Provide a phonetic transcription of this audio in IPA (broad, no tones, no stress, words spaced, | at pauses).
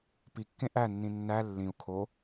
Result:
pikːẽ ʔænːĩ nːæ lːĩu̯ kʰo